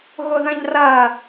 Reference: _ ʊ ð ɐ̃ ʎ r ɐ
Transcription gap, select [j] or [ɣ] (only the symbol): ɣ